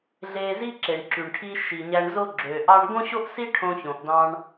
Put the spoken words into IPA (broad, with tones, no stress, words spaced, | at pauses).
ɮe˧zi˥ ǁe˩ɳǁy˩ɳʈʰi˧ ʃi˩ɲæ˧ɳzo˥ ɡ͡ǁø˩ ʔɑ˥ɳ ɡõ˥ɕo˥ʔsi˥ ʈʰõ˧çõ˩ʔdɑ̃˧ɳ